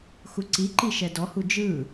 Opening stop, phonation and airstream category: click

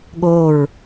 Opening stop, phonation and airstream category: implosive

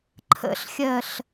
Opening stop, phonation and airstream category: click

